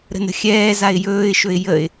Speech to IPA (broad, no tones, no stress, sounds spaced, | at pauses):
ɾ ə̤ n ə̤ xʲ ɛː z a ɪ̯ j ɵː ɪ̯ ʃ ɵ ɪ̯ j ə ɪ̯